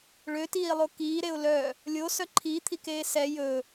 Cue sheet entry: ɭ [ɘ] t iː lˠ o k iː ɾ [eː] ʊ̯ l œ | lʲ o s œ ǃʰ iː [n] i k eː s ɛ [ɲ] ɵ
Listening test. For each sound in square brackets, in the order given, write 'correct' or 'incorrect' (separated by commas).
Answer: incorrect, incorrect, incorrect, incorrect